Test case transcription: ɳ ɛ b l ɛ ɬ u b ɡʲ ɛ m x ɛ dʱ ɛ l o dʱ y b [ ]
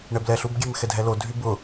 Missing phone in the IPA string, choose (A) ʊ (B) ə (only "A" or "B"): A